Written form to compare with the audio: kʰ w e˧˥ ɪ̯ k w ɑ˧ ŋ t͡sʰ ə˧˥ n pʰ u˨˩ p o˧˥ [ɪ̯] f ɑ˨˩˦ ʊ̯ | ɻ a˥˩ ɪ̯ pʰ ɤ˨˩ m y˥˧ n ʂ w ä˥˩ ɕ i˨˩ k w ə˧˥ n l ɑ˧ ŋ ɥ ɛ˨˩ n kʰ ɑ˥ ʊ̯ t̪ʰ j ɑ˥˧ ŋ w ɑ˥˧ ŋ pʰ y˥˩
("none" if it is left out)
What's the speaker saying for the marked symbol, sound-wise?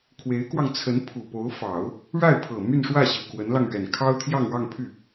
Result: ʊ̯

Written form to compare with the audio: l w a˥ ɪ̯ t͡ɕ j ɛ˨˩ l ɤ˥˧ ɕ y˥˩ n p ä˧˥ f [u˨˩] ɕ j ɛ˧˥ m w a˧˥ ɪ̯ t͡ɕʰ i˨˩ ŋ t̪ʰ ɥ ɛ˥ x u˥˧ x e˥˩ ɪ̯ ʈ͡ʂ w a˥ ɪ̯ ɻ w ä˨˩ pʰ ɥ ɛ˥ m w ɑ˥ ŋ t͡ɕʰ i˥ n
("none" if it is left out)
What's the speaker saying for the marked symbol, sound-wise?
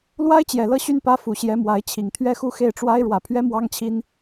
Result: u˨˩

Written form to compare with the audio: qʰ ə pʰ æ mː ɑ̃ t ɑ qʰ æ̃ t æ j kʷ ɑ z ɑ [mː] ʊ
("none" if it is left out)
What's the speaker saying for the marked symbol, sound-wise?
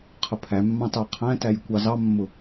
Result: mː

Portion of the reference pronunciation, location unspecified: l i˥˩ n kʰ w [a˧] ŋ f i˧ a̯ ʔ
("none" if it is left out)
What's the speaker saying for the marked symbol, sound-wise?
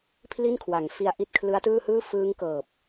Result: a˩˦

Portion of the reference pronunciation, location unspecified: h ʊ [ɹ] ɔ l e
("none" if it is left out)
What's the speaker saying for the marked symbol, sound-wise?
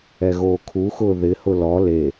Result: l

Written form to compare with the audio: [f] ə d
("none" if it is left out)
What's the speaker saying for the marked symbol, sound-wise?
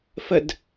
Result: f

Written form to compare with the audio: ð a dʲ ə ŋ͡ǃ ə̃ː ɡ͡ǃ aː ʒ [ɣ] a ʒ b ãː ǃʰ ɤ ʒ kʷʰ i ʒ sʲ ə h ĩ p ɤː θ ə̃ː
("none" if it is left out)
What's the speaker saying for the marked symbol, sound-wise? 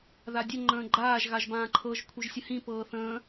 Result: ɣ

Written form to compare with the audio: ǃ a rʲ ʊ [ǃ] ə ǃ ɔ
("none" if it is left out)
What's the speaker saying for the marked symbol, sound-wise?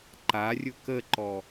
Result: k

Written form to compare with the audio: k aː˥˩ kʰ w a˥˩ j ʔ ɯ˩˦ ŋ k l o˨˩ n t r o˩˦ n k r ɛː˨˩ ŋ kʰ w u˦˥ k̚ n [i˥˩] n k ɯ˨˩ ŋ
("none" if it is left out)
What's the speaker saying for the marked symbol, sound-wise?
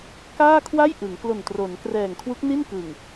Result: i˥˩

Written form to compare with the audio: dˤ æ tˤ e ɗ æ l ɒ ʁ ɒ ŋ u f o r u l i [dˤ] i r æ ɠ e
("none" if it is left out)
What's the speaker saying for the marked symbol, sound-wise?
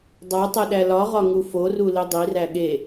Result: dˤ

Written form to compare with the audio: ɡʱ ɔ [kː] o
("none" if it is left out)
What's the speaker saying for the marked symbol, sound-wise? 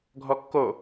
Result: kː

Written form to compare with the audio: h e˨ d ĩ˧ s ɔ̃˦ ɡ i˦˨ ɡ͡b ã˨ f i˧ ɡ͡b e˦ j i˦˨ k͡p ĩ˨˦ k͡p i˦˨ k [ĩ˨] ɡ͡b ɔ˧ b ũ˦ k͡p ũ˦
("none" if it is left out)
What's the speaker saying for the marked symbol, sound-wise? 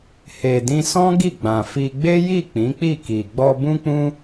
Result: i˨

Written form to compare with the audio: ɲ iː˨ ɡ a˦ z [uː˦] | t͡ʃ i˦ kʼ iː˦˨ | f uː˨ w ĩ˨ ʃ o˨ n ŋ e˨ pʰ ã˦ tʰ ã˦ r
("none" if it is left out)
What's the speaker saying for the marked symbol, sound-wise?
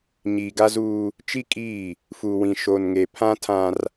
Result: uː˦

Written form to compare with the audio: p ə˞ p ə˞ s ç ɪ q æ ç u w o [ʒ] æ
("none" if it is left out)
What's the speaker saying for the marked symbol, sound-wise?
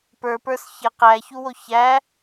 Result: ç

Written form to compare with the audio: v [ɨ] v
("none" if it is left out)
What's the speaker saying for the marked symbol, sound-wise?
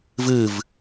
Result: ɨ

